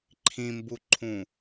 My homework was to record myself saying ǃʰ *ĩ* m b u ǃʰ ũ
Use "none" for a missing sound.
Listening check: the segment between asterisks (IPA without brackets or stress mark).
ĩ